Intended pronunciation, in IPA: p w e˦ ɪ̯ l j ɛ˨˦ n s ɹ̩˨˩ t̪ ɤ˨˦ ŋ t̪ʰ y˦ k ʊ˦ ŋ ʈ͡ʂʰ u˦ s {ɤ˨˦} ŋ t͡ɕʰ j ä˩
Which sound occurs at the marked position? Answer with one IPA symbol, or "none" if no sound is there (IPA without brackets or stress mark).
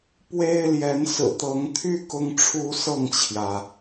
ɤ˥˨